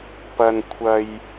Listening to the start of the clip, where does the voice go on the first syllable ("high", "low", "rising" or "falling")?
low